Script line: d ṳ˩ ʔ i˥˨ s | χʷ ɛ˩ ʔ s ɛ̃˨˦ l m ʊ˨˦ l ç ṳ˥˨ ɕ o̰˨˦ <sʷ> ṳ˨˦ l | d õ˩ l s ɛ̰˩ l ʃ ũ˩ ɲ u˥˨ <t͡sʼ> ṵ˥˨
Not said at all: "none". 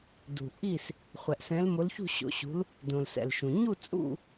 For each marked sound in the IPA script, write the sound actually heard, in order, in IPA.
ɕ, t͡sʼ

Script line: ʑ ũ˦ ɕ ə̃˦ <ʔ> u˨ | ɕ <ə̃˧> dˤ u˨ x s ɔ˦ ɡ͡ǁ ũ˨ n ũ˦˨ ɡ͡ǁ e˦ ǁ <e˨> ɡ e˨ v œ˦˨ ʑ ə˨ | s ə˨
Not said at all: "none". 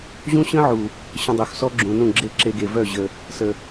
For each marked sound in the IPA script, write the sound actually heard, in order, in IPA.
ʕ, ə̃˧, e˧

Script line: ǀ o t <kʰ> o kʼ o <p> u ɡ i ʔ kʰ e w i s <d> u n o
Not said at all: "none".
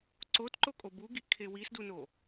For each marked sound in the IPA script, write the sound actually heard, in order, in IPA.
ǃ, b, d

